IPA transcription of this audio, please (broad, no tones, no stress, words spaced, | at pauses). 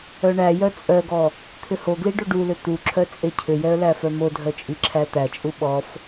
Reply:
œɳæjœ t͡sʼœɡɔ | t̪ʰʏhoɡli ɖoɖulʏ t̪uǁʰœ t͡sʼecʰʏjɛə̯ læfœmodʱœ t͡ʃʼiǁʰæt̪æt͡ʃʼu ɓɔf